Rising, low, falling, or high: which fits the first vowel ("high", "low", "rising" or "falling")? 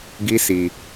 high